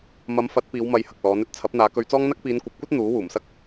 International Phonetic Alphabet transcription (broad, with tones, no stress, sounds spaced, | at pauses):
m ɐ˨˥ m f ɐ˨˥ t̚ p iː˨˧ w m ɐ˧ j h ɐ˨ k̚ l ɔː˨˥ n ɵ˨˥ t̚ t͡sʰ ɐ˨˥ p̚ n̪ aː˨˧ k ɵ˧ ɥ t͡s ɔː˥ ŋ n̪ ɐ˥ k̚ p iː˨˧ n kʷ ɐ˨˥ p̚ kʷ ɐ˥ t̚ n̪ uː˨˥ w uː˨˩ m s ɐ˥ k̚